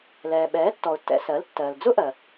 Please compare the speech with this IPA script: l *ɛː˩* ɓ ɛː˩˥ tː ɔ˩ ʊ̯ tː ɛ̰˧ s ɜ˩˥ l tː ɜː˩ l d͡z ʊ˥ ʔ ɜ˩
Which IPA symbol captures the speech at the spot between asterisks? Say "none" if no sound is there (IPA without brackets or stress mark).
ɛː˩